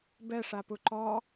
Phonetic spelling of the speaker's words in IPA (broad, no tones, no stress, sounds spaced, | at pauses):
b ɛ ʂ a p u ǃ ɔ